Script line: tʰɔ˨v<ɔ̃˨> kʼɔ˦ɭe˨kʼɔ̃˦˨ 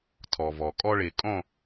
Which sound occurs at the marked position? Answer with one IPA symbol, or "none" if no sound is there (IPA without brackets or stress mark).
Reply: ɔ˨